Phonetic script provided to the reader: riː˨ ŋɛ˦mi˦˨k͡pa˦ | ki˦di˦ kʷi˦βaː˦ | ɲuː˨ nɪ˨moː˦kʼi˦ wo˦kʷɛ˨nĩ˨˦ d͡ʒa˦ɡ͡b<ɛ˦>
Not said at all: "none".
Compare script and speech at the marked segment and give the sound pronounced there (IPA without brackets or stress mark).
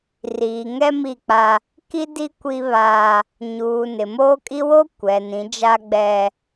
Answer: ɛ˦